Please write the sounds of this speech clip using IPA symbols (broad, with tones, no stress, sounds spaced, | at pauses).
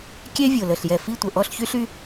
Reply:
kʲ ɛ˦˥ vʲ o˨˩ l ə˨˩ ɬ j ɛ˨˩ f i˥˨ tʷ ə˨˩ ʔ ɔ˧˥˧ ɬ ç y˦˥ ɬ y˦˥